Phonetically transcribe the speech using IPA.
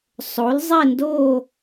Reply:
sˤo˩˥lzˤe˥˨ndoː˥˨

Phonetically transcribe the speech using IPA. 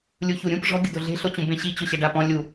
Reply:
lʲuçuɾʲũp ʐɔ̤ ɡʲʊdoɮe̤ ɬot͡ɕũbẽɕi t͡ɕʊɕɛɖapɔ̃ lʲu

